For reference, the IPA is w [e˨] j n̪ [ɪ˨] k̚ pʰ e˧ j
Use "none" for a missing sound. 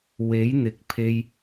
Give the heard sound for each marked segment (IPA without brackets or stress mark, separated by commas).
e˨˥, ɪ˨˥